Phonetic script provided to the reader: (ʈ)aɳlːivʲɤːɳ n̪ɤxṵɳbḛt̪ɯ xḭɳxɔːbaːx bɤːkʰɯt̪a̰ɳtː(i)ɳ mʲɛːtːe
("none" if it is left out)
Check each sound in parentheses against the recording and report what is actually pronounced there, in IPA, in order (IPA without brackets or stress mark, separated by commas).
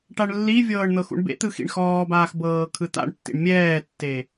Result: ʈ, ḭ